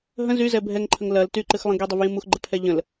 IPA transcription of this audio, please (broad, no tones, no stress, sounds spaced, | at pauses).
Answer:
ɦ ə̃ z y z ɛ bʱ ɛ ŋ ǃʰ ə ŋ l ɐ l t y ǃ ɨ x lˠ ə̃ ɡ y dˤ i v j ĩ m u x ɡ͡ǃ ə pʰ ɛ ʎ ə̃ l